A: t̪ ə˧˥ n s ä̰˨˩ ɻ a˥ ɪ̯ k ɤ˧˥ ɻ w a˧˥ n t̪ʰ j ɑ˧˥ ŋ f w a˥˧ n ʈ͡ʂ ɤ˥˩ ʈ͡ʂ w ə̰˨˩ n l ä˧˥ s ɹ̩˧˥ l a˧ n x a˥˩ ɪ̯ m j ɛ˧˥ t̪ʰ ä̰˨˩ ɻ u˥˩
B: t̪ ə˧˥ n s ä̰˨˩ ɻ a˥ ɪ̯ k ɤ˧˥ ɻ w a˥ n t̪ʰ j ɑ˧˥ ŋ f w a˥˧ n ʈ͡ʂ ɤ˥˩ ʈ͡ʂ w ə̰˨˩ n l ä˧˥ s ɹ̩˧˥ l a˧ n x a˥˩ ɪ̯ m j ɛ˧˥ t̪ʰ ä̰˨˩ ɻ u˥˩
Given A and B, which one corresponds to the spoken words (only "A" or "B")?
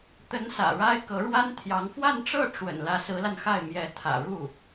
B